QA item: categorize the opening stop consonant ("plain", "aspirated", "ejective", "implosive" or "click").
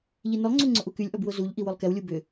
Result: click